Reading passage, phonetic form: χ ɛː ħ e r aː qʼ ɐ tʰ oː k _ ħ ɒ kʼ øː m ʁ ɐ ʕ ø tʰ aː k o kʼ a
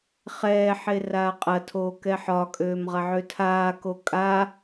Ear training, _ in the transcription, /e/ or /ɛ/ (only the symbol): ɛ